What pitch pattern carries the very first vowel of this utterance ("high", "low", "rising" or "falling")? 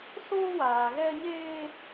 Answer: high